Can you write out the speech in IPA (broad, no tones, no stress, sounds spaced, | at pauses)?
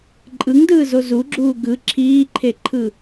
ǃʼ ɯ ŋ d ɯː z o z u ɡ͡ǁ uː ɡ ɯ ǁʰ iː ǃʰ e ǃʰ ɯ